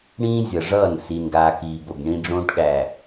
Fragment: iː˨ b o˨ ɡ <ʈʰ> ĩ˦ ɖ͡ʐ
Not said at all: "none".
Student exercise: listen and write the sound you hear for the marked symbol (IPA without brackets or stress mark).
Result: ɳ